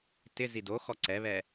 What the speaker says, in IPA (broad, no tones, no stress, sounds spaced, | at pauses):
t ɪ z i d o x ɔ ǀ ɛ β ɛ